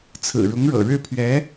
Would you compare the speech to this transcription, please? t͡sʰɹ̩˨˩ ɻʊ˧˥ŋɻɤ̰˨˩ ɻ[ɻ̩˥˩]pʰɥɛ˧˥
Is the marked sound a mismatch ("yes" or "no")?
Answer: no